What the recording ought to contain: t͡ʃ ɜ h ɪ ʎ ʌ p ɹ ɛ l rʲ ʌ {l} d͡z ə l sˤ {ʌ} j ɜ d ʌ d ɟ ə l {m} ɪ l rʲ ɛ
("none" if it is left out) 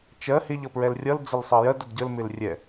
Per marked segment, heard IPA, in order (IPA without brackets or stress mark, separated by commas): l, ʌ, m